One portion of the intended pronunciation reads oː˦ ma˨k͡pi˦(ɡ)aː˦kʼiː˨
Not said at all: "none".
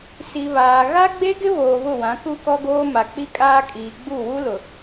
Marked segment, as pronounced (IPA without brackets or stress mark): kʼ